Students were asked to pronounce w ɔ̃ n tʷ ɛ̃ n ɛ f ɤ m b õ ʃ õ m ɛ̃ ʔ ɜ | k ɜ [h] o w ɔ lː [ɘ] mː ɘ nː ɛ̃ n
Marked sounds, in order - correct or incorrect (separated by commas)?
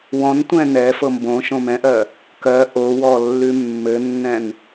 incorrect, incorrect